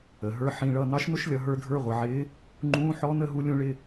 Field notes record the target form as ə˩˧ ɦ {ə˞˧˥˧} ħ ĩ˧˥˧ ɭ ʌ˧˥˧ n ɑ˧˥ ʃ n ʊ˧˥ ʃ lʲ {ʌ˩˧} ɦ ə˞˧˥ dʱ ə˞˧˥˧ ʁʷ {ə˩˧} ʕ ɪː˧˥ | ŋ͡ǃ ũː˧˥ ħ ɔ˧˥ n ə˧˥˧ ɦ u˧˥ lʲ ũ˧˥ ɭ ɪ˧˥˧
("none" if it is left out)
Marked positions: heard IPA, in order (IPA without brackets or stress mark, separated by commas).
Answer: ə˞˧˥˧, ʌ˩˧, ʌ˩˧